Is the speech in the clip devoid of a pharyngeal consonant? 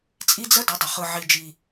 no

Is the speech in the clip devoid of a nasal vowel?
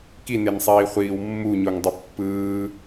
yes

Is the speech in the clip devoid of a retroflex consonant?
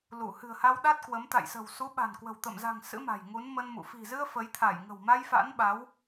yes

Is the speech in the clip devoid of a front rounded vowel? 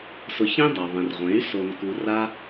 no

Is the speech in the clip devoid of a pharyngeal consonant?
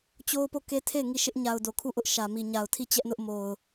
yes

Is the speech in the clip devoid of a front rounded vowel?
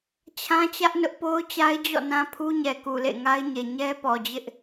yes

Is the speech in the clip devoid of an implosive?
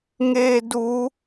yes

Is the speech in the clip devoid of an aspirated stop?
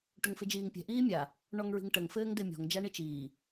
yes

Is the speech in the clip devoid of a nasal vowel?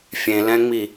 no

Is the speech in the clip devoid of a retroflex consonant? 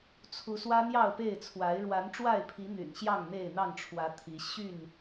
no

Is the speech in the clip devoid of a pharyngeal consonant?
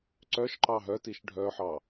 no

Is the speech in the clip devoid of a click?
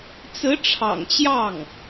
yes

